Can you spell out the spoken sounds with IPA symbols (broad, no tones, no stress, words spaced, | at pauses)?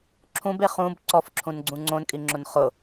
ǁʰũbe χũb ǀɔfǁʰũnɡ͡ǀũ ŋ͡ǀõnkʼiŋ͡ǁʊn χʊ